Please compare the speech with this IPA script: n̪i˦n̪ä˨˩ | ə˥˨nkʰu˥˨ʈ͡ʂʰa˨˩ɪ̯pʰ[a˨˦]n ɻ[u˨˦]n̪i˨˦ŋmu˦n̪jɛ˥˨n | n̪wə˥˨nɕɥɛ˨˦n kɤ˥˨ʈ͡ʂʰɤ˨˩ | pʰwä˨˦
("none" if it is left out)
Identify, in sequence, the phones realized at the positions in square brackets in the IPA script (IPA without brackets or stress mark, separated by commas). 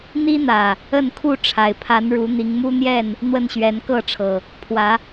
a˨˦, u˨˦